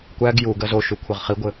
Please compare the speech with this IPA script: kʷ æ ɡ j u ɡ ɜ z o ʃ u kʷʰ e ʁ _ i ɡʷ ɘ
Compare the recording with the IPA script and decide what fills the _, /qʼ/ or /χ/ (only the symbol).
χ